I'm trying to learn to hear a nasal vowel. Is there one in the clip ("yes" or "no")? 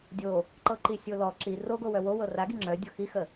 no